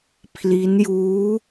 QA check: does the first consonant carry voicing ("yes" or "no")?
no